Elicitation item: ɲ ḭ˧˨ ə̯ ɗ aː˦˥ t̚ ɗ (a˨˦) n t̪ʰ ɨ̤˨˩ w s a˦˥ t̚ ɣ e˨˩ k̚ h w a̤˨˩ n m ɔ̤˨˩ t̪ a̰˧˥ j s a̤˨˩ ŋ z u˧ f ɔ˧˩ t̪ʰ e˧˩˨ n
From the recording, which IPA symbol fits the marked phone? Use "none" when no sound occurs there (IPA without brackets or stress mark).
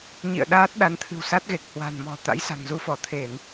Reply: a˨˦